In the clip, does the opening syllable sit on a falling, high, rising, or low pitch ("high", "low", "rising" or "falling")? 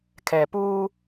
low